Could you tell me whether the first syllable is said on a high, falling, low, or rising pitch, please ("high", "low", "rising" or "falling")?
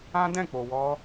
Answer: high